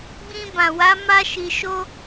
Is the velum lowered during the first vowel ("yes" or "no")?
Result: yes